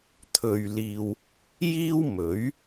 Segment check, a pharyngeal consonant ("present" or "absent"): absent